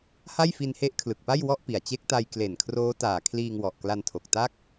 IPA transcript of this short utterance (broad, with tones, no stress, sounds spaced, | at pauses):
h a˥˩ j f i˧ n h e˦˥ ʔ kʰ l ɯ˨˩ k̚ p a˥˩ j w ɔ˥˩ ʔ p i˨˩ a̯ t͡ɕ e˦˥ k̚ t a˧ j k l e˨˩ n kʰ r oː˦˥ t aː˨˩ kʰ l iː˧ ŋ w ɔ˨˩ ʔ k l a˧ n tʰ o˨˩ k̚ t a˥˩ k̚